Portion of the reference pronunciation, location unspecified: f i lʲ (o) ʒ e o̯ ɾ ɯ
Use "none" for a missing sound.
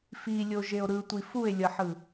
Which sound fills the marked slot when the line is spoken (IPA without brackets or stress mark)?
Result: o